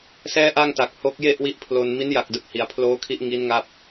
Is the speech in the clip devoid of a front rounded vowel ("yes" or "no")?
yes